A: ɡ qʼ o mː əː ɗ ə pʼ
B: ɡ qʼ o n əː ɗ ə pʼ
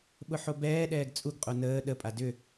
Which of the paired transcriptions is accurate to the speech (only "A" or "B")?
B